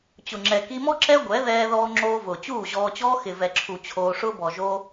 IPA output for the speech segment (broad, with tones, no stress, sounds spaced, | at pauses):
t͡ɕ ʊ˨ ŋ͡ǁ ɛ˨ k i˧ m ɔ˦ ǁ ɛ˦ ɡʷ ɛ˨˦ ð ɛː˧ ð ɔː˧ ŋ͡ǁ oː˧ v ʊː˨ t͡ɕ uː˦˨ ʑ ɔː˧ t͡ɕ ɔː˦ x ɪ˨ v ɛ˨ ǁʰ u˨ t͡ɕʰ oː˧ ʂ ʊː˧ b ɔ˨ ʒ oː˧